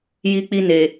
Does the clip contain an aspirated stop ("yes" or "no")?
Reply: no